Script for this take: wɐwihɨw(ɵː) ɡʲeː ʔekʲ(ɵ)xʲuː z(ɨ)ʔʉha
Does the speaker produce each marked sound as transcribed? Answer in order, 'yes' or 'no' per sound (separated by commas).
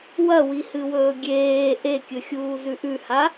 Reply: yes, yes, no